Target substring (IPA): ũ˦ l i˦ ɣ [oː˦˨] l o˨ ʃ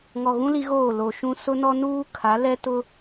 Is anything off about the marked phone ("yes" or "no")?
no